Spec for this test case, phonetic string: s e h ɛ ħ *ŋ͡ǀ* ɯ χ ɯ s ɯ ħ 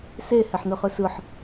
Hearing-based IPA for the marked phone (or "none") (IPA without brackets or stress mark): n